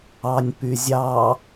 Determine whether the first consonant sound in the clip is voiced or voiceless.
voiced